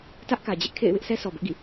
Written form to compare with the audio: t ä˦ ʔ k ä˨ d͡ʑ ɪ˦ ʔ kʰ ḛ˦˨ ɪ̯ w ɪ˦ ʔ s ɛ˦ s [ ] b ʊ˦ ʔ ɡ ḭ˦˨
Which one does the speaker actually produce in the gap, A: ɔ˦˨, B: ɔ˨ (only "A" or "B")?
B